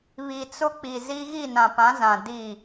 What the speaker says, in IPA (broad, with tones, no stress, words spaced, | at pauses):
βi˨t͡sʊ˦k͡pi˨zi˦ ɣi˦˨nã˨pã˨˦ zã˨ di˦˨